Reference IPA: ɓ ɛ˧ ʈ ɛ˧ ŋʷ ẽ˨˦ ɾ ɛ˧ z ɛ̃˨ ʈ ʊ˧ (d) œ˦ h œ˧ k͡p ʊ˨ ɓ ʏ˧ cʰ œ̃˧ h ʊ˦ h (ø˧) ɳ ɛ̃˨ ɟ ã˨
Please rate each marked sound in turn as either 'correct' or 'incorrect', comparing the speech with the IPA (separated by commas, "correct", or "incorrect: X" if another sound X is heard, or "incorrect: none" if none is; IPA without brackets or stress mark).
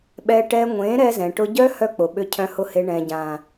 incorrect: ɟ, incorrect: e˧